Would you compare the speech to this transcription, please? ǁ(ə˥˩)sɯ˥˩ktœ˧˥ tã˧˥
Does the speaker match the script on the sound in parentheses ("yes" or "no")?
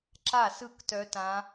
no